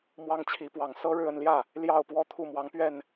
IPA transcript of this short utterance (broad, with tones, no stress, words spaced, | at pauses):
mwɑ˥ŋt͡ɕʰi˧˥pwɑ˨˩ŋ sɤ˥ɻɻ̩˥˧ə˥˧nljä˥˩ | ljɑ˥˩ʊ̯pwɔ˥ t̪ʰu˥˩mwɑ˧˥ŋ pɥɛ˥˩n